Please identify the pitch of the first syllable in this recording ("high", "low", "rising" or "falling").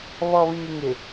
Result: low